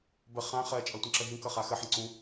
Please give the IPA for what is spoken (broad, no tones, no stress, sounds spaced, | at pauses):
b ə χ ã χ ɜ t͡ʃʼ ʌ tʷ ə̃ ǁ ə ɦ ĩ k ʌ χ a x ə ħ ə̃ ǀ ũ